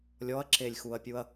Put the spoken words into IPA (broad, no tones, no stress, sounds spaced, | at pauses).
lʲ ɔ ɐ̯ ǁ e lʲ x u ɐ̯ pʲ u ɐ̯